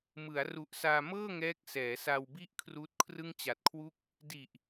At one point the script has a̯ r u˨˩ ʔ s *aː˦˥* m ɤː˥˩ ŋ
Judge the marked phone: incorrect: aː˧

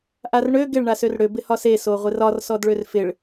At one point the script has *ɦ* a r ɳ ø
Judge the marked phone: incorrect: ʔ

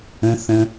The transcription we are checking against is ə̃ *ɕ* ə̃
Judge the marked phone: incorrect: θ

